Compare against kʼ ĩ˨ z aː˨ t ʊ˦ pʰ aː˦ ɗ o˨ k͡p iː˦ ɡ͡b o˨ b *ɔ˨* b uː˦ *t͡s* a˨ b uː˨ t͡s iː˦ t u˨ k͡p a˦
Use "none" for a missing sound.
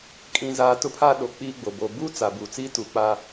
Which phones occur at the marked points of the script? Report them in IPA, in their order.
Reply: o˨, t͡s

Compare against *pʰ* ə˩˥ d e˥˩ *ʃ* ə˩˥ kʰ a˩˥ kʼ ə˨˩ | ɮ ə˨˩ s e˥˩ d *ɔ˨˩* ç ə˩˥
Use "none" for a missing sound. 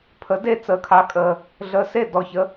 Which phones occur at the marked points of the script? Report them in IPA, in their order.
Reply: pʰ, t͡s, ɔ˨˩

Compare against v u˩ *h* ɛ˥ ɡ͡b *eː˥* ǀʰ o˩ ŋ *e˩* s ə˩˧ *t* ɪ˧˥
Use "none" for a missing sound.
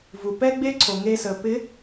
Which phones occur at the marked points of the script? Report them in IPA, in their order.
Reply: p, e˥, e˧, p

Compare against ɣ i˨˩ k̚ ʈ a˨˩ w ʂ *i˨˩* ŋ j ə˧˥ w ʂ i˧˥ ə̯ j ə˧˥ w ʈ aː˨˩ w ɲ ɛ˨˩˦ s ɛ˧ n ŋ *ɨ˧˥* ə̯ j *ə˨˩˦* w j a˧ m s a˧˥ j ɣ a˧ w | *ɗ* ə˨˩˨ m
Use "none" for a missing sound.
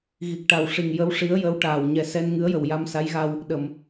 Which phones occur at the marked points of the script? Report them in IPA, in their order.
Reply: i˨˩, ɨ˧˥, ə˨˩, ɗ

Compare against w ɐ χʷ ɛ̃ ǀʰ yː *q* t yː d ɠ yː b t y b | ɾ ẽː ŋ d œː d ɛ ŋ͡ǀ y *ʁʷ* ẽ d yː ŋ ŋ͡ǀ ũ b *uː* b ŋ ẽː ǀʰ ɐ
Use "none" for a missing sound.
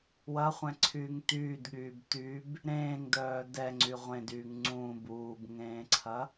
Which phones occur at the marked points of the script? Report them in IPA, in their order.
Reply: ŋ, ʁʷ, uː

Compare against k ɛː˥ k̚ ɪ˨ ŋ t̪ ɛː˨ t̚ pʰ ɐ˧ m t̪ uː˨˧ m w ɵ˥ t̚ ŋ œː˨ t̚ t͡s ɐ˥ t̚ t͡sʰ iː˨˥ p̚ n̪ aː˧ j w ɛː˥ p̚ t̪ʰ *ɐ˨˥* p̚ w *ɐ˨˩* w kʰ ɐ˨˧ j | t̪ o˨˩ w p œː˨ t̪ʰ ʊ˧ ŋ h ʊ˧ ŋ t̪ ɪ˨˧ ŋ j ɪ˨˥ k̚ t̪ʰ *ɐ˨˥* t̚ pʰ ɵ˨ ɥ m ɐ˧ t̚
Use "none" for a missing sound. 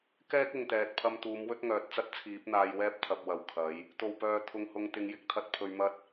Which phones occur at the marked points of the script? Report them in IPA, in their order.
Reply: ɐ˨, ɐ˨˩, ɐ˧

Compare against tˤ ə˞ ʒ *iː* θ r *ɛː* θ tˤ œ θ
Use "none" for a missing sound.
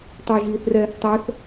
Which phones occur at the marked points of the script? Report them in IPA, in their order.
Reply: iː, ɛː

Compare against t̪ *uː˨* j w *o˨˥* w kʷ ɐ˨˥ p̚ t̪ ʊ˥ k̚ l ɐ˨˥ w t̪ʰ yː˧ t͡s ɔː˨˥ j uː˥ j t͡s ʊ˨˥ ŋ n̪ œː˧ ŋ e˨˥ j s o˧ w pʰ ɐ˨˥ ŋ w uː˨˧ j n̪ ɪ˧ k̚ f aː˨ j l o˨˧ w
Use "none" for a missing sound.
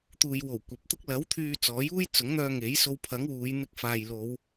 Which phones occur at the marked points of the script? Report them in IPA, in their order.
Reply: uː˨, o˨˩

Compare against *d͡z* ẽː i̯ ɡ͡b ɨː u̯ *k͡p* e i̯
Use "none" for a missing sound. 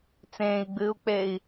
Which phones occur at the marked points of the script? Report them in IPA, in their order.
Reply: t͡s, k͡p

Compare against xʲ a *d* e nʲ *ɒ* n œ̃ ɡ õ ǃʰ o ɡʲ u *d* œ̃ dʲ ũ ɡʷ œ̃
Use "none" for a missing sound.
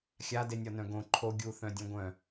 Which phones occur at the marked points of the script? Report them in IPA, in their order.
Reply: d, ɒ, θ

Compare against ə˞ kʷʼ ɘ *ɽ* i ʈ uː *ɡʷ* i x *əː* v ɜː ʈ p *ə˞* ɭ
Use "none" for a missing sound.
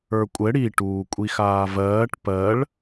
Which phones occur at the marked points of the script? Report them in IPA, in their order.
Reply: ɽ, kʷʼ, aː, ɜ

